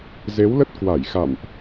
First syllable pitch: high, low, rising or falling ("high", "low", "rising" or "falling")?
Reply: rising